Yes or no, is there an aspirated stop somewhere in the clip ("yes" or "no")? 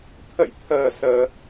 yes